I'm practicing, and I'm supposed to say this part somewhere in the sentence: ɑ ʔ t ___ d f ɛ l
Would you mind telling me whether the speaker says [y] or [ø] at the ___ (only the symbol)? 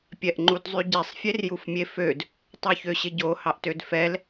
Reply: ø